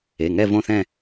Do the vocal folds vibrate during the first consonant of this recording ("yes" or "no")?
yes